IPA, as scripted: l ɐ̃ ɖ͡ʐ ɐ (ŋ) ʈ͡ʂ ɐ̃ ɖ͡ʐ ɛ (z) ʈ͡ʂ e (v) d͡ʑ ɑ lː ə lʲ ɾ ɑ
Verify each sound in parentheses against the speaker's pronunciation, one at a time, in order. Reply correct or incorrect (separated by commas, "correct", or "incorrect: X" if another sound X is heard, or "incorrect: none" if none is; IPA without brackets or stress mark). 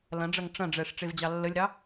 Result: correct, incorrect: ʂ, correct